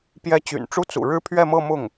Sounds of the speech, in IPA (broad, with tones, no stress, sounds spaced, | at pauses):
p j ɛ˧˥ t͡ɕ y̰˨˩ n ʈ͡ʂ u˥ t͡s ṵ˨˩ ɻ ɻ̩˥ pʰ ɥ ɛ˥˧ m ɤ˥˧ m ʊ˥˩ ŋ